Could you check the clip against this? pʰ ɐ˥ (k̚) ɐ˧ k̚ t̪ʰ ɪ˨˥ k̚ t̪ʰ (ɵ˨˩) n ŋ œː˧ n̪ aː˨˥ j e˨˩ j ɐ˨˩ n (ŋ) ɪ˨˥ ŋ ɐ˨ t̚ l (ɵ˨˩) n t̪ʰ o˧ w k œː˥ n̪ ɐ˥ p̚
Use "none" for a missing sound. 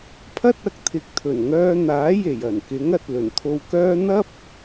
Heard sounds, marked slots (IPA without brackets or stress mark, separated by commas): t̚, ɵ˨˩, k, ɵ˨˩